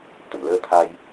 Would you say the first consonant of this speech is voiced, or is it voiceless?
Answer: voiceless